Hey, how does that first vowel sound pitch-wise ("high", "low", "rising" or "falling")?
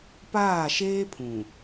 falling